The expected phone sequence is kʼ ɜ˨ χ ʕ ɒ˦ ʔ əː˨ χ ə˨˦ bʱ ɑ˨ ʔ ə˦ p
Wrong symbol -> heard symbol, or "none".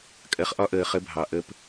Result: ʕ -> ʔ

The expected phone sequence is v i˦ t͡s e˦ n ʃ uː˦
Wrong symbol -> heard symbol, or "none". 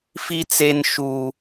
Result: v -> f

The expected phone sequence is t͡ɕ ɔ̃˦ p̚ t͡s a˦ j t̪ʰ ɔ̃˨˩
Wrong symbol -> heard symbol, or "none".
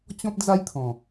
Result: t͡s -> d͡z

